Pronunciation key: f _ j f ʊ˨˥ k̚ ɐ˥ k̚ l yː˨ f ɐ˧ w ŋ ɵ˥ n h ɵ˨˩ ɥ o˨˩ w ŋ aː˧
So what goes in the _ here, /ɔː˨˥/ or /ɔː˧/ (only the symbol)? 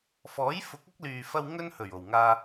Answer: ɔː˨˥